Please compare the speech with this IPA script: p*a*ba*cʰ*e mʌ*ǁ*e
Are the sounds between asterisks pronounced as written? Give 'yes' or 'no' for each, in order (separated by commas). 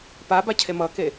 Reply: yes, yes, no